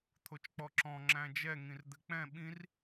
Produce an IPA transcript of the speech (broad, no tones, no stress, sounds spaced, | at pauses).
t̪ʰ o t͡ʃ k͡p ɔ ǁ ɔ̃ ŋ͡ǁ æ̃ d͡ʒ ɛ ŋ ĩ r d̪ ɘ k͡p ɛ̃ ɓ ĩ r